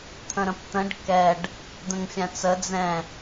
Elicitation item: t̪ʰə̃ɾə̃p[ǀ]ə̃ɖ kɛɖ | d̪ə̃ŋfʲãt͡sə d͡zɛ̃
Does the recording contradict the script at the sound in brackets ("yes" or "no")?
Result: yes